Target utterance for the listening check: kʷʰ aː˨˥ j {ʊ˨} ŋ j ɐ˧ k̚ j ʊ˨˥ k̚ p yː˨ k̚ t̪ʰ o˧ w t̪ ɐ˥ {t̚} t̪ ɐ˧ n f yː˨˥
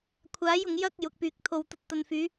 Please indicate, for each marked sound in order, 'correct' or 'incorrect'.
correct, correct

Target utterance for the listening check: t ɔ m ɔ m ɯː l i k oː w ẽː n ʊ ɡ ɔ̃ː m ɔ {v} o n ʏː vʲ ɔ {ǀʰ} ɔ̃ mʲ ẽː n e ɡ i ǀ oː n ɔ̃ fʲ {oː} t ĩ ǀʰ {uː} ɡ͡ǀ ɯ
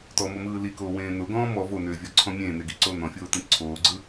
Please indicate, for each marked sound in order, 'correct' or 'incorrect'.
correct, correct, correct, incorrect: oː

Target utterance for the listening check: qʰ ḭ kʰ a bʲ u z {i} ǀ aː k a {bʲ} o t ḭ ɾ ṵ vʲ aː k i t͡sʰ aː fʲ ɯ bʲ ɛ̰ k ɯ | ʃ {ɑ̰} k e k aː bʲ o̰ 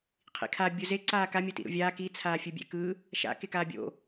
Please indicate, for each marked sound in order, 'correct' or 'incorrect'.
incorrect: e, incorrect: mʲ, incorrect: a̰

